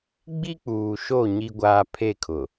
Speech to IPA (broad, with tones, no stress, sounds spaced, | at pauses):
ɡ͡b i˦ k͡p uː˨ ʃ o˦˨ ɲ i˦ ɡʷ aː˦ pʰ e˦˨ kʰ ʊ˨